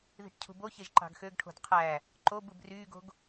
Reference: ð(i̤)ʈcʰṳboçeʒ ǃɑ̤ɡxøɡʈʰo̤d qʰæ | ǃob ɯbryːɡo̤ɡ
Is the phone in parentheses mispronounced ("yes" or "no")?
no